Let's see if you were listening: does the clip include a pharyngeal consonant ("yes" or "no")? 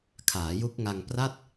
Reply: no